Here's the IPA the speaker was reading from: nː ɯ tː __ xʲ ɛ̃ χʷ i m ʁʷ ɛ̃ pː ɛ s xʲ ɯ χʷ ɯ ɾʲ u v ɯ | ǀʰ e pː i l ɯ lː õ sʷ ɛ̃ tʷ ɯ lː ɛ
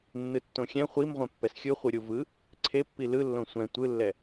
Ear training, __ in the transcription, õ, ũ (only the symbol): õ